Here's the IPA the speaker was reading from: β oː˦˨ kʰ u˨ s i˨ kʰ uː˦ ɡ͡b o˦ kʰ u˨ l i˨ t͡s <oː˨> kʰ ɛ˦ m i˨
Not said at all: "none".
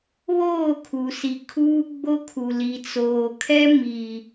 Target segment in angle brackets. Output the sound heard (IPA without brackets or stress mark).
oː˨